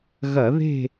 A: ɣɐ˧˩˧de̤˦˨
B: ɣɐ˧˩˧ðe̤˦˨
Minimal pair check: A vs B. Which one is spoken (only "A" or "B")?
B